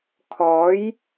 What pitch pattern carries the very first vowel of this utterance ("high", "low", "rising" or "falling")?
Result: rising